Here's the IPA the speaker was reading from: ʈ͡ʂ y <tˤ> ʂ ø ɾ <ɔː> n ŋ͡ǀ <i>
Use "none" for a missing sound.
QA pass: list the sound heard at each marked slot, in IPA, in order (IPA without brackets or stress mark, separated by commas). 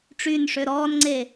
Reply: n, ɔː, e